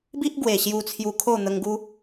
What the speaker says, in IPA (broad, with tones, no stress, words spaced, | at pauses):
bi˦ʔɡwe˨˩ ɕju˧t͡sʰju˧kʰo˥˧ n̪ə˧ŋɡu˦